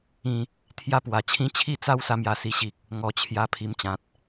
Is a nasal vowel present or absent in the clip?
present